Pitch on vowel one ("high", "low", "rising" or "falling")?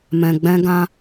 low